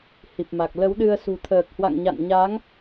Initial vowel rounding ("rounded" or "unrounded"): unrounded